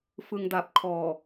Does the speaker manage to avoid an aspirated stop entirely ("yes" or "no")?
no